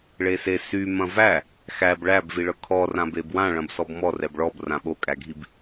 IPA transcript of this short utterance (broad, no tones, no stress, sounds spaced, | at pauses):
ɭ e s e s y m ɐ̃ v æ | x æ b ɭ æ b v i ɭ ɤ kʰ ɔ r ã b e b w ã ɭ ɐ̃ b s ɔ b m ɔ r ɛ b ɭ ɔ b r ã ɓ o kʼ æ ɡʱ i b